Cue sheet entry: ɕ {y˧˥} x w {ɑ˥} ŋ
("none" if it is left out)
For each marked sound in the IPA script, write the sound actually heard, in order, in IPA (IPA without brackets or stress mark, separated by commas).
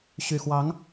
y˨˩, ɑ˧˥